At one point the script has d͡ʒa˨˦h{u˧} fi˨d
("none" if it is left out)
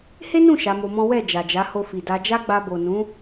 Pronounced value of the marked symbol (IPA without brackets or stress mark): o˧